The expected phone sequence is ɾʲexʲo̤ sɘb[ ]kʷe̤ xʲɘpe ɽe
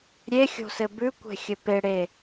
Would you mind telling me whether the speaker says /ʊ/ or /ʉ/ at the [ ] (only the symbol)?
ʉ